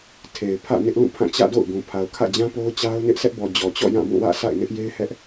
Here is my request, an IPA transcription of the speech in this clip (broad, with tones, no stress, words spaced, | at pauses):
tʰe˨ɪ̯pʰä̰˦˨ nɪ˦ʔlũ˦˨ pʰã˦˨ t͡ɕä̰˦˨do̰˦˨ʊ̯ɡũ˨ pʰa˨ʊ̯kʰä̰˦˨ d͡ʑã˦po˦ʊ̯ t͡ɕa˦ʊ̯nɪ˦ʔ sɛ˦ʔbɔ˨ d͡ʑɔ˨t͡ɕɔ̰˦˨ jã˦˨bũ˦˨wä̰˦˨ sa̰˦˨ɪ̯nɪ˦ʔje˦ɪ̯hɛ˦ʔ